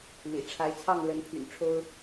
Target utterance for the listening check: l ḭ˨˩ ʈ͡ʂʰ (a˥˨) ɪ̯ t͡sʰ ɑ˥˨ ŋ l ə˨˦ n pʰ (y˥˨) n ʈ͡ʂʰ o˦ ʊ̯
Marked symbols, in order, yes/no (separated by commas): no, no